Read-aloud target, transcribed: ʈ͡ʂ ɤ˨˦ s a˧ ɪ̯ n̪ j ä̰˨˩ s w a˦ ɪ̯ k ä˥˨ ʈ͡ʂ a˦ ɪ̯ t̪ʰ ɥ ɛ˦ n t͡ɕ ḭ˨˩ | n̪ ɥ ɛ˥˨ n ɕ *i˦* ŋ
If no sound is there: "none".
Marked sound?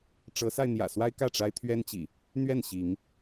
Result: i˨˦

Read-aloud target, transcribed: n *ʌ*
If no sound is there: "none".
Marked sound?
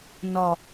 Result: ɒ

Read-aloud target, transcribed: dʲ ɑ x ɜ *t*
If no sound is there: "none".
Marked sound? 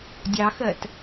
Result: t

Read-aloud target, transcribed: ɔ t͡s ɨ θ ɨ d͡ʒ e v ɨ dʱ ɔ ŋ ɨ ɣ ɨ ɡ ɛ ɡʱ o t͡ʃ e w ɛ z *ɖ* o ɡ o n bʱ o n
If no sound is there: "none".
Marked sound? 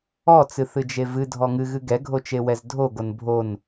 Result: dʱ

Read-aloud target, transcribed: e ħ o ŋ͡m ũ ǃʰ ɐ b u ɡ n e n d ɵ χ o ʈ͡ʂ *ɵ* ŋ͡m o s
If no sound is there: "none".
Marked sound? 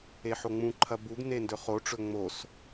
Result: ɵ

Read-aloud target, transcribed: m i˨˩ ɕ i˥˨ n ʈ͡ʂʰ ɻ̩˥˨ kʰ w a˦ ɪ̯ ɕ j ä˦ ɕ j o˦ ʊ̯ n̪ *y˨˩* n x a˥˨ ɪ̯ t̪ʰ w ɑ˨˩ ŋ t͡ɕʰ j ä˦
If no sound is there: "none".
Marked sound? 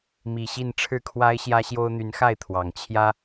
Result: y˨˦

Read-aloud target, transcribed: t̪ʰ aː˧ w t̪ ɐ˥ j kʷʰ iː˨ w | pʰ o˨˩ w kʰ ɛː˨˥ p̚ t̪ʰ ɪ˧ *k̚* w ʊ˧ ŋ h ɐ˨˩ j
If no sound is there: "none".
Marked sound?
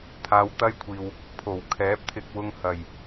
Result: k̚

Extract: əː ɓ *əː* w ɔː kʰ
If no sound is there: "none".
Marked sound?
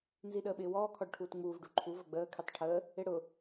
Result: ɪː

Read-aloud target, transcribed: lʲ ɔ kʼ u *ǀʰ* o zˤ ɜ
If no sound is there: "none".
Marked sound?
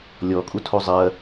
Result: tʰ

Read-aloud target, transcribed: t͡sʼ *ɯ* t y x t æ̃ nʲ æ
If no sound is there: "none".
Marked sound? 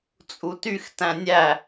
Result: u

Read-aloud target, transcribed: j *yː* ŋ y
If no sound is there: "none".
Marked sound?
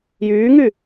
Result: yː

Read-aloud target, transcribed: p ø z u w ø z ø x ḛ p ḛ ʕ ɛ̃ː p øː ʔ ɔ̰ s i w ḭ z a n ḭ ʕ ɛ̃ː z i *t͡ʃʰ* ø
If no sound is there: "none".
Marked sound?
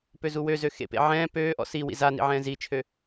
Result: t͡ʃʰ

